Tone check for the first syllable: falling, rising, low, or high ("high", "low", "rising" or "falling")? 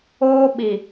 high